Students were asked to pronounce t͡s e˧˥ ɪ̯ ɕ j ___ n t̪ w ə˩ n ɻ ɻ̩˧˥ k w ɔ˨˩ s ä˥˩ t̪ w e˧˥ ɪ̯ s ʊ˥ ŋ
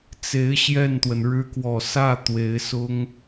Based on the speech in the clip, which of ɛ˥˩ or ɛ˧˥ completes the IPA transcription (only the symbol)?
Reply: ɛ˥˩